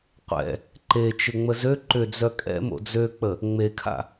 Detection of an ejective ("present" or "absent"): present